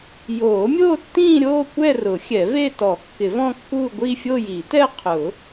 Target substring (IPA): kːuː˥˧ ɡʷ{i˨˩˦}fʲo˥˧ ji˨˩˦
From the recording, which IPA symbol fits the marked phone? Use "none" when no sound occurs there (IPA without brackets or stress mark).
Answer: i˥˧